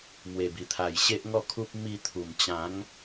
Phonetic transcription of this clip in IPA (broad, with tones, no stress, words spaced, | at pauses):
mwe˨˩bi˨˩t̪ʰa˨˩j ɕe˦ʔŋɔ˥˧kʰu˦p̚ mi˧t̪ʰu˨˩m t͡ɕã˨˦ŋ